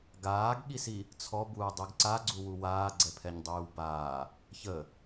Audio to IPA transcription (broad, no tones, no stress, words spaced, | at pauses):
ɡaːɡɠisi | t͡sʰɔbuːdˤyɡ ǀaɡ͡ǀuwu waːɡ͡ǀɛpʰɛɲdˤyːw baː | çə